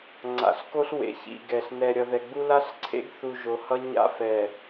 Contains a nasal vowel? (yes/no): no